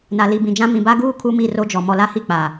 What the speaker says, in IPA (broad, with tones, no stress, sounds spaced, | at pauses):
n a˨ l i˨ b ĩ˨ d͡ʒ ã˦ m ĩ˨ b a˦ ɡ uː˦ kʰ u˦ m i˦˨ r o˦ d͡ʒ ɔ˨ m ɔ˨ l a˦ h i˦˨ k͡p a˨